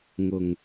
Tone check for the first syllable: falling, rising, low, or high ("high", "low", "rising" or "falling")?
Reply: low